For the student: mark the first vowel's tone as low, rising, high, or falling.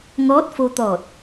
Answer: rising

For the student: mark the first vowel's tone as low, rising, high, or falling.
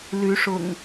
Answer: rising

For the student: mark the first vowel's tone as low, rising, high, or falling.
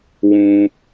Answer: high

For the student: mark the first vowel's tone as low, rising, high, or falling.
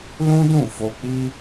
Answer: high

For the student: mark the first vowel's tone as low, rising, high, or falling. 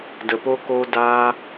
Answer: low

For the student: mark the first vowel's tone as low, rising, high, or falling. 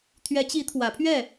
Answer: rising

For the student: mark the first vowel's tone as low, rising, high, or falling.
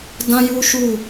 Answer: high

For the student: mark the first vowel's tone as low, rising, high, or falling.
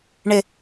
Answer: low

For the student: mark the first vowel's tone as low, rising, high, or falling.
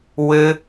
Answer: high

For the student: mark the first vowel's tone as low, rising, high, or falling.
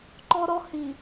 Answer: high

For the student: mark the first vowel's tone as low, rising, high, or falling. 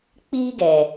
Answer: high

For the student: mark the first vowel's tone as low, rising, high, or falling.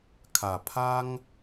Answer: low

